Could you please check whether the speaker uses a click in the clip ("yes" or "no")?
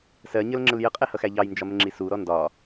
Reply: yes